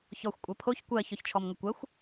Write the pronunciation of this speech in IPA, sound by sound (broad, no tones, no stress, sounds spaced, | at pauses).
ç ɔ xʷ kʷʼ ɜ pʰ o ç kʷ ɜ ç ɔ ç t͡ʃʰ ɔ m ŋ ə kʷ ɜ xʷ